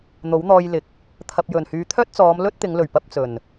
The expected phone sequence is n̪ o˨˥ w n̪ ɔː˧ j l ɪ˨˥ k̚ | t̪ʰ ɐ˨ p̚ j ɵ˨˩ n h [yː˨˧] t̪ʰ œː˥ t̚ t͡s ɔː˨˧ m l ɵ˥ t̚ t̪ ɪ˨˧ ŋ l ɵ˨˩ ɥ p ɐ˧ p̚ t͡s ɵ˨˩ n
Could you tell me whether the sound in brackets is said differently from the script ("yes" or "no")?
no